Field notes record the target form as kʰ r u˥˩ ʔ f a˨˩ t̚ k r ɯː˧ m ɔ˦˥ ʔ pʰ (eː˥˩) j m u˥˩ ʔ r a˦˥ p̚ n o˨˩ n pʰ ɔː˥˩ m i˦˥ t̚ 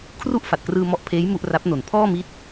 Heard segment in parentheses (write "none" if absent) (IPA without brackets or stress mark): eː˦˥